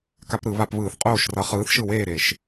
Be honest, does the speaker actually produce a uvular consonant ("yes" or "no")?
yes